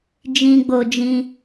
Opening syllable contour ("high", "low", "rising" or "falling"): low